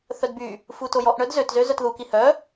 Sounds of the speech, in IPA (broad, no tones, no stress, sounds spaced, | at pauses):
θ œ d b y | f u t o j ɔ ʔ ɳ œ d z ø t z ø z œ t ð u k i h œ